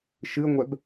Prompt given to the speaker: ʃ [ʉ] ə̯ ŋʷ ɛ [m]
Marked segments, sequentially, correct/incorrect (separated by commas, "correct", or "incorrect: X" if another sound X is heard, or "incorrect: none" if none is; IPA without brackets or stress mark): incorrect: ɨ, incorrect: b